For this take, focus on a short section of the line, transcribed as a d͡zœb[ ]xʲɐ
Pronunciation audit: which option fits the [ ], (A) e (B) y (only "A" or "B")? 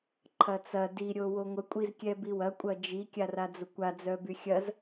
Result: B